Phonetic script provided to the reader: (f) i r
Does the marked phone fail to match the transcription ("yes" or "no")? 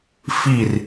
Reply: no